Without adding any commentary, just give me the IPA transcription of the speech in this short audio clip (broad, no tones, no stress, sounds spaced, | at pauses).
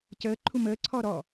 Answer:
c əː ǃʰ u m əː ǀʰ ɔ ɾ ɔ